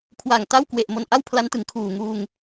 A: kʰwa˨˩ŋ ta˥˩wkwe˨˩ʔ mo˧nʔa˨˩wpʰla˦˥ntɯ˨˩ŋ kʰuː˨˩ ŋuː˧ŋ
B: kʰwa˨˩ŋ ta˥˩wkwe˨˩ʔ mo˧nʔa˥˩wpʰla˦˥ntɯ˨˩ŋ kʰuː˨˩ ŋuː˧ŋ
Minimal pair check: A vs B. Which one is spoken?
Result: B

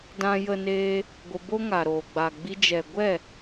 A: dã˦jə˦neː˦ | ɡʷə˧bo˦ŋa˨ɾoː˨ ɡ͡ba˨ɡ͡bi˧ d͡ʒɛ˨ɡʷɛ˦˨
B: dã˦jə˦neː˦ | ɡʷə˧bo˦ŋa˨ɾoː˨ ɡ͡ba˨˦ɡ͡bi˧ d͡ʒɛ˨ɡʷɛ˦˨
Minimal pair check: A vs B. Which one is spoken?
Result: A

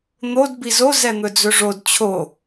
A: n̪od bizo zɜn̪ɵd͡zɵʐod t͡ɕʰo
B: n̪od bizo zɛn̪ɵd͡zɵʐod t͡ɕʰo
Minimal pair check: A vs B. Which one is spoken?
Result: B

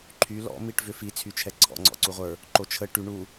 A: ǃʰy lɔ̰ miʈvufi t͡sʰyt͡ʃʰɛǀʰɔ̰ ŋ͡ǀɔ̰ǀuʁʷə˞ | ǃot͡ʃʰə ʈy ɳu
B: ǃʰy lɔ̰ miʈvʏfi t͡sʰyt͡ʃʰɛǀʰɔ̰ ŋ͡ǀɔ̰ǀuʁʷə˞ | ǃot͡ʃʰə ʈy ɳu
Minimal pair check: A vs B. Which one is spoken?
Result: B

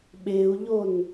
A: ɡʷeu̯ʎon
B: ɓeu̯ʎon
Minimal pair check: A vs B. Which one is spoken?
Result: B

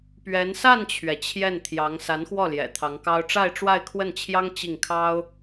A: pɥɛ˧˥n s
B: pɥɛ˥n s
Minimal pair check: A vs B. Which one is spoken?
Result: A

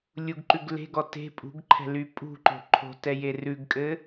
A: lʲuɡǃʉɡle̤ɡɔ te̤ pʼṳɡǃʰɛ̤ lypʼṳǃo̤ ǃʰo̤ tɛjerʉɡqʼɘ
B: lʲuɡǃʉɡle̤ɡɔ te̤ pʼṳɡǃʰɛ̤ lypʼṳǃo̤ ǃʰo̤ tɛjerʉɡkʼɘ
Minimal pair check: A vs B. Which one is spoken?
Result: B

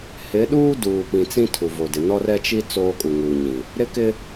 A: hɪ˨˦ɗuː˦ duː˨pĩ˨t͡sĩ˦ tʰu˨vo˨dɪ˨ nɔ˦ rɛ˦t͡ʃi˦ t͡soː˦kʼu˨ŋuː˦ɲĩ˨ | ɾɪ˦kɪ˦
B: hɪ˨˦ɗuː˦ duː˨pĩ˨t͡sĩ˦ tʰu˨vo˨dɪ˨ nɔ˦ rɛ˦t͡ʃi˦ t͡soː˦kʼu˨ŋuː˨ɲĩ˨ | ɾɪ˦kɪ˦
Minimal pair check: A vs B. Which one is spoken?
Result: B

